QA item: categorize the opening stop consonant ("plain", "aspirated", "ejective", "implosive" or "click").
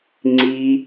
click